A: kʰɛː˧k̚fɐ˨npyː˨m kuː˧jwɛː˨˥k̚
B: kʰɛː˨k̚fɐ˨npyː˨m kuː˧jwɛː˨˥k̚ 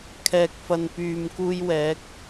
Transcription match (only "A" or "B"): B